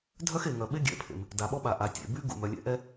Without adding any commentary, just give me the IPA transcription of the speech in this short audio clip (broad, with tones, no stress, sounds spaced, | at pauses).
dʱ œ˥ x e˩ ŋ œ˩ ɓ e˥ ɡʲ ɛ̰˩ pʰ ḛ˩ m | d a˩ ɓ ɔ˥ ɓ a˩ ʔ a˩ tʲ ḛ˩ b y˥ ɡ ṵ˩ m œ˩ lʲ ɛ̰˥ ʔ ɛ˥